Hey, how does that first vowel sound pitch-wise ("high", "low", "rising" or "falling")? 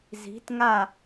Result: rising